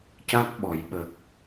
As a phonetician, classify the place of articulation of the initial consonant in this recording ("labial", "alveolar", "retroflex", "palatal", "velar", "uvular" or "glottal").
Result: palatal